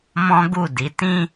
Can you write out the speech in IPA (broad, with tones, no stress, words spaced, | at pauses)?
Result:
mɔ̃˦ɡu˦˨di˨˦ tĩ˦